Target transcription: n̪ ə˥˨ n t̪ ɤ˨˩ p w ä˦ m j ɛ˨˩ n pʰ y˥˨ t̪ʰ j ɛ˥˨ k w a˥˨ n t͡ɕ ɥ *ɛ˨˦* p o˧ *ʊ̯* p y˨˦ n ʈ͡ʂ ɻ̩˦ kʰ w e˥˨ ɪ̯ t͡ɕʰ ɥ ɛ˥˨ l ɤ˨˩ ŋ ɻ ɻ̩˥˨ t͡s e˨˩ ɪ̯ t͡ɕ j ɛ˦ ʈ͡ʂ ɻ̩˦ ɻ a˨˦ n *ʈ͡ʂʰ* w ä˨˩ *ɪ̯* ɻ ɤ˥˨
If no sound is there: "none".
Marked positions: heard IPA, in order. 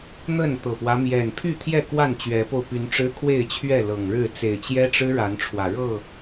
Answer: ɛ˨˦, ʊ̯, ʈ͡ʂʰ, none

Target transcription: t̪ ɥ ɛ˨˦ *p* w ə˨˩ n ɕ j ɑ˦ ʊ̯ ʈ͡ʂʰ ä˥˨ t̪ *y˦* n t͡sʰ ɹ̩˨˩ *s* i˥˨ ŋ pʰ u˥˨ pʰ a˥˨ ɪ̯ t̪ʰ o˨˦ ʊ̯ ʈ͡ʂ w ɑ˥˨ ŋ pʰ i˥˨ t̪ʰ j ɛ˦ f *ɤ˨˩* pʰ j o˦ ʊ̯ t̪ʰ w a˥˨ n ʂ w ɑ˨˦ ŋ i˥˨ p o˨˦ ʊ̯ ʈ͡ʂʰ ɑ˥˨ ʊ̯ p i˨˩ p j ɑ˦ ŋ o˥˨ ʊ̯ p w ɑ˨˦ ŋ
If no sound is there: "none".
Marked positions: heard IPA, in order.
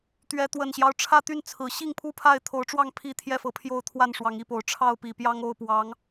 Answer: t̪, y˥˨, ɕ, ɤ˨˩

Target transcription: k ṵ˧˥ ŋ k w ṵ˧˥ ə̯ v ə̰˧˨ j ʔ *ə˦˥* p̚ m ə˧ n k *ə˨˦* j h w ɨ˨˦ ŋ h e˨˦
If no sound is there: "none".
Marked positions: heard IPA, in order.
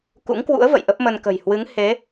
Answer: ə˦˥, ə̤˨˩

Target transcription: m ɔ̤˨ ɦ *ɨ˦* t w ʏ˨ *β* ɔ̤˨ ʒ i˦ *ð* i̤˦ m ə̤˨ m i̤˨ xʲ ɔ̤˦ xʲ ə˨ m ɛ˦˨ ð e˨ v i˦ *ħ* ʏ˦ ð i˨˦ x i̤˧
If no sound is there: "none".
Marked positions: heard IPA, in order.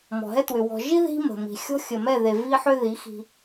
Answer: ɛ˦, w, ð, ħ

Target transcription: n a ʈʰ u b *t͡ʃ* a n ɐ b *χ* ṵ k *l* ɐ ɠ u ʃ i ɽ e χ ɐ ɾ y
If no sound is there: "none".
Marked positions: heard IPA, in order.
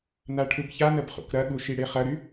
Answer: ç, χ, ɾ

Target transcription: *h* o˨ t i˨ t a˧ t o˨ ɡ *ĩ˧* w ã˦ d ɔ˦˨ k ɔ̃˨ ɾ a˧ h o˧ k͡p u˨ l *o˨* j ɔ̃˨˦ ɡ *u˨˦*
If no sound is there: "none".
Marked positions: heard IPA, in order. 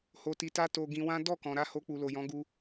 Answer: h, ĩ˧, o˨, u˧

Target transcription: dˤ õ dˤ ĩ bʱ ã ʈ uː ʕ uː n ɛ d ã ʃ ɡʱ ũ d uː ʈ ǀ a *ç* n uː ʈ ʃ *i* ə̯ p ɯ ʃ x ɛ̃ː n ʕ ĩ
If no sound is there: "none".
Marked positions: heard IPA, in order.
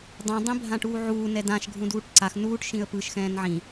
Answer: x, ĩ

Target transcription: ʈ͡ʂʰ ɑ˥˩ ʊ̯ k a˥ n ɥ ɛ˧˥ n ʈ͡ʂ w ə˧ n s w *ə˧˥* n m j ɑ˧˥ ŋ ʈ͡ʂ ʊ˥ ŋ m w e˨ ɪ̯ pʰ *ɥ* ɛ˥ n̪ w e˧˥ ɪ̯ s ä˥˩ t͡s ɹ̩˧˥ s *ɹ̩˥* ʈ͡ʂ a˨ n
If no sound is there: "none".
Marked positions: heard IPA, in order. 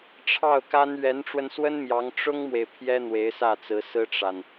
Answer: ə˥, j, ɹ̩˥

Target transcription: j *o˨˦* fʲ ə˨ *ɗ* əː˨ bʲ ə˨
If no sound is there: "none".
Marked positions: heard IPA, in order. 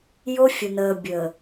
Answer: o˦, n

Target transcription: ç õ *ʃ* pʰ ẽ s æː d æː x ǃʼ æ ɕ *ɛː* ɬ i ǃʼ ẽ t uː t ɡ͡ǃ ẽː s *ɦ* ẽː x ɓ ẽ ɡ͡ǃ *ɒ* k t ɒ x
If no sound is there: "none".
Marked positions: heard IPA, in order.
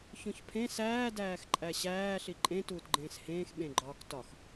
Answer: ç, æː, h, ɒː

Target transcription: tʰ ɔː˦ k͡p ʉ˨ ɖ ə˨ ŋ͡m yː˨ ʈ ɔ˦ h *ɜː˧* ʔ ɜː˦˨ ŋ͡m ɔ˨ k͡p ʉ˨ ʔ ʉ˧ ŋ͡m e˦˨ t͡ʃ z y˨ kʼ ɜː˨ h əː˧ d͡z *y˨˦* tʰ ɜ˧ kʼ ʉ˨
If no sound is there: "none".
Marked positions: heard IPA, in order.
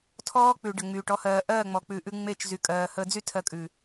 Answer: ɜː˧, y˦

